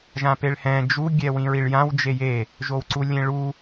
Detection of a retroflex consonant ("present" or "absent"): present